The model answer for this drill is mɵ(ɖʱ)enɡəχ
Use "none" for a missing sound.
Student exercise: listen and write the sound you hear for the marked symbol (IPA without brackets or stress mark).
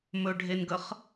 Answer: ɖʱ